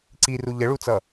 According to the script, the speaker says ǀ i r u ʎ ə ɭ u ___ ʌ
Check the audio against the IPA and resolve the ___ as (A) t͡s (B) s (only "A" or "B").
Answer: A